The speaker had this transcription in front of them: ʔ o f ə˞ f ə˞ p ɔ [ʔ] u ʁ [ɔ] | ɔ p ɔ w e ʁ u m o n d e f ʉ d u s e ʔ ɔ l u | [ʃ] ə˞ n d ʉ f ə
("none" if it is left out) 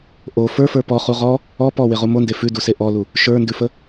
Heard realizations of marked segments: χ, ɔ, ʃ

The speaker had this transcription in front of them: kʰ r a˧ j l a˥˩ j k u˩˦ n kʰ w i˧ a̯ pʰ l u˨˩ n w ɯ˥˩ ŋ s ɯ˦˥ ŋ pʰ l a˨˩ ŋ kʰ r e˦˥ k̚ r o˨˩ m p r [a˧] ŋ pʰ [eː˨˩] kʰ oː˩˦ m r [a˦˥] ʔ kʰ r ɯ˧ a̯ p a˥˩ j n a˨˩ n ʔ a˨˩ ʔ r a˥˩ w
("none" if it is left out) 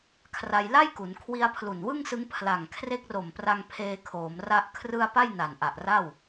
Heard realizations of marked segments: a˧, eː˧, a˦˥

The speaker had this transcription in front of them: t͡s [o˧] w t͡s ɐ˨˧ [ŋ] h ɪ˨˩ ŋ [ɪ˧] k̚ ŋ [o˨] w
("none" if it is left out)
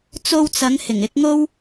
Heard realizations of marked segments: o˧, ŋ, ɪ˨˥, o˥

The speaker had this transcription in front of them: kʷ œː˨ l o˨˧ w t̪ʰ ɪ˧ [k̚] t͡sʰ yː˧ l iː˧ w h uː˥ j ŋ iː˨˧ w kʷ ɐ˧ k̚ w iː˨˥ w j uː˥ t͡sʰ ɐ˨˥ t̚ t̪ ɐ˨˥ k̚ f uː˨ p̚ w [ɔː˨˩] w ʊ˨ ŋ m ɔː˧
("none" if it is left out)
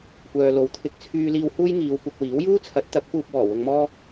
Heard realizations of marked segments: k̚, ɔː˨˩

